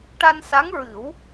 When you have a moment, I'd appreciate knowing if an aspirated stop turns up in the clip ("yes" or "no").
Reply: no